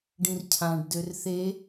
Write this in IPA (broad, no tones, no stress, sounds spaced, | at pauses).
ɖ ĩ r cʰ ã ɖ d ø r θ e